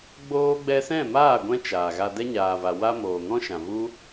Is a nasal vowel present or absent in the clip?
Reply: present